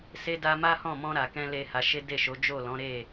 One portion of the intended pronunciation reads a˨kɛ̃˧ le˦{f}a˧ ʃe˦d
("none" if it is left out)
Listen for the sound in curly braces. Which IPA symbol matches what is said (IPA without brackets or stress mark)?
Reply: h